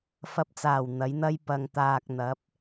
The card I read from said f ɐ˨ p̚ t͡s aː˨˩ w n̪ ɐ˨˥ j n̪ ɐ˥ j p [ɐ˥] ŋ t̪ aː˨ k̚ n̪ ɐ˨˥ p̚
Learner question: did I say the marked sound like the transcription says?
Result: no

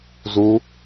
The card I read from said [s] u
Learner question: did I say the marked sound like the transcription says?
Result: no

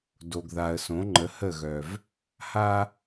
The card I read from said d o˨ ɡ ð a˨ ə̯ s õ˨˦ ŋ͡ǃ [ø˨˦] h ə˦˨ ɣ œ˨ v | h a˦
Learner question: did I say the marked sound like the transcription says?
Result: no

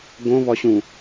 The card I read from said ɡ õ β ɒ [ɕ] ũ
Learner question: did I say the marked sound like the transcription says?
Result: yes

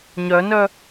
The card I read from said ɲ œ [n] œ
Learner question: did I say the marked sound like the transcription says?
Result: yes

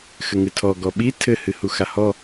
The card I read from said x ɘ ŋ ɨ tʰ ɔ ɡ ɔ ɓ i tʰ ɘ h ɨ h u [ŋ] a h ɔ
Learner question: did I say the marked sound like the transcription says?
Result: no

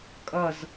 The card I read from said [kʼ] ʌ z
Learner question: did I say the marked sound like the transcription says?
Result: yes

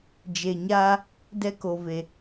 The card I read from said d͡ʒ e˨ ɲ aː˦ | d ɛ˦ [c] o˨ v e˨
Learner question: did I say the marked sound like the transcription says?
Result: no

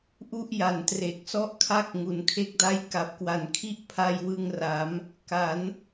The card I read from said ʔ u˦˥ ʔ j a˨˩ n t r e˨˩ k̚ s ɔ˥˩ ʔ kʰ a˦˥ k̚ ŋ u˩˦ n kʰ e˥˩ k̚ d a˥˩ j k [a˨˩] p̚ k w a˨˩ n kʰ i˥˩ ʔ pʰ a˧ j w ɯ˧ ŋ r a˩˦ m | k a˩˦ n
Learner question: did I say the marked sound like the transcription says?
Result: yes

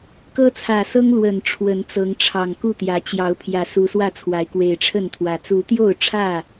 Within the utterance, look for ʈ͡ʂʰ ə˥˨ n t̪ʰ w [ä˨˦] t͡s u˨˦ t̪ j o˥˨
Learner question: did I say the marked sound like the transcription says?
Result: yes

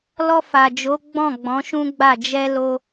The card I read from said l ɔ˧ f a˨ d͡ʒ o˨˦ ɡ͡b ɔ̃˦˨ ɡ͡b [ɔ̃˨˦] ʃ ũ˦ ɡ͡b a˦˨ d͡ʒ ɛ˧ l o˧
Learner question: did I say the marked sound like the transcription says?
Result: yes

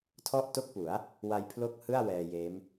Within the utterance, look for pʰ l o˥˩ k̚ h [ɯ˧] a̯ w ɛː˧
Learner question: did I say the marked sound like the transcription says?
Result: no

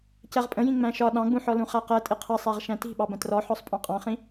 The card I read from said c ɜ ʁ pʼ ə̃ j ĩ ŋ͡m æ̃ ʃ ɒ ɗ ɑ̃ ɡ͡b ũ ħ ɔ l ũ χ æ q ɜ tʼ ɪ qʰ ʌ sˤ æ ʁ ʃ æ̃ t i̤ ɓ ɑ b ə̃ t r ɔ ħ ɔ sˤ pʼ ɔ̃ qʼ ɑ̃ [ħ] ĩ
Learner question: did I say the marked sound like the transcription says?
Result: no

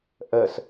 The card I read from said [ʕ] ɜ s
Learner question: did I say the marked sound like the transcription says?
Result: no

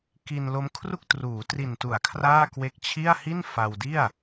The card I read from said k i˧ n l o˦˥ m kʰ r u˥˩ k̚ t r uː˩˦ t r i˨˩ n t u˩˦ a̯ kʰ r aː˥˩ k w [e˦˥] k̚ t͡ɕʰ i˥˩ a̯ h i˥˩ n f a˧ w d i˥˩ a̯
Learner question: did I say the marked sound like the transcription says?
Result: yes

